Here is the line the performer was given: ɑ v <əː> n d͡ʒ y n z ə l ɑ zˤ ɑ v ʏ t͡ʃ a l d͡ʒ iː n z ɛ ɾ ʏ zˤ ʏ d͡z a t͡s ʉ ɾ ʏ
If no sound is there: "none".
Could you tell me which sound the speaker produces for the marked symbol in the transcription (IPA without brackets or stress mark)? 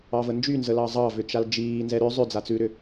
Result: ə